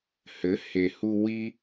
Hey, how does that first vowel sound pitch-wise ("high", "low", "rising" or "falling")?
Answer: rising